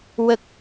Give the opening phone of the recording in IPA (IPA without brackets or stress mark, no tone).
w